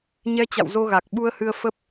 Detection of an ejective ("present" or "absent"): absent